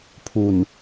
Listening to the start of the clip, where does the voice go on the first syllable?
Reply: low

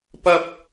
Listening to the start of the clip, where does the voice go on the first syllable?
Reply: high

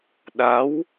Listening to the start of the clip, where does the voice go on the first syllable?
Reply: rising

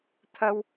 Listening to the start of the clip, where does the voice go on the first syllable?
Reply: high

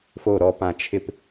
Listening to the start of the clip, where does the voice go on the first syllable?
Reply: low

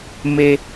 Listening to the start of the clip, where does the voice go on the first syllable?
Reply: high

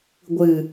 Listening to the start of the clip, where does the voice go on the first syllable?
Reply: low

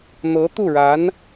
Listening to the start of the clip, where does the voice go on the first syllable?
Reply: rising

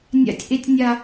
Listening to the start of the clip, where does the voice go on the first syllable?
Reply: high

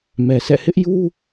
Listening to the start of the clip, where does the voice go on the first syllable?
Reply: low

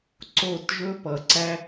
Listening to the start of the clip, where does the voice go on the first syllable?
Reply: falling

